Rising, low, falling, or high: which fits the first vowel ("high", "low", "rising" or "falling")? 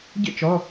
falling